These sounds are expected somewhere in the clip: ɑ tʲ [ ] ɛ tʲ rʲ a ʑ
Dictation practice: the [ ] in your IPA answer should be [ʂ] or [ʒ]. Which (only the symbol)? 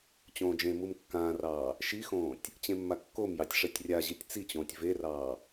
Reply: ʂ